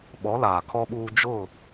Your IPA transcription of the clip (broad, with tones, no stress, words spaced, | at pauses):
ɓɔ˨˦laː˨kʰɔ˦ɓuː˦ d͡ʒʊ˦˨